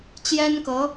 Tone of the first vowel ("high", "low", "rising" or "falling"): high